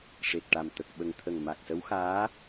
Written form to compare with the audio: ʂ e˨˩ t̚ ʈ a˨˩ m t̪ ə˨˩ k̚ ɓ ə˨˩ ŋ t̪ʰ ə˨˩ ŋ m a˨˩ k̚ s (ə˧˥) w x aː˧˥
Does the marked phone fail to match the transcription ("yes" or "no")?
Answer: no